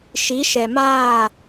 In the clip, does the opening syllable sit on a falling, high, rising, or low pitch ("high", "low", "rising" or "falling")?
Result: rising